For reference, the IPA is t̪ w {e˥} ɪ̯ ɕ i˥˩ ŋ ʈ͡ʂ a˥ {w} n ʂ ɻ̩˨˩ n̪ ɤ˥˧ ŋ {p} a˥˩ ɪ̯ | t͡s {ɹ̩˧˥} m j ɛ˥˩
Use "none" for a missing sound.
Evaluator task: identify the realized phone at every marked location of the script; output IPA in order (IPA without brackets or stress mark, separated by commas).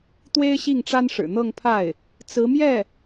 e˥, none, pʰ, ɹ̩˧˥